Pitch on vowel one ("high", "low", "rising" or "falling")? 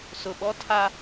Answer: low